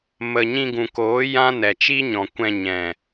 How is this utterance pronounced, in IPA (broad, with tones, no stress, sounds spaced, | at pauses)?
m ə˨ ɲ ĩ˧ ɡ ũ˨ k oː˨˦ j ã˦ n ɛ˨ t͡ʃ iː˦ ɲ ɔ̃˨ kʷ ɛ̃˧ ɲ ɛ̃˨